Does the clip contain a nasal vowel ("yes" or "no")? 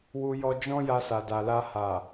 yes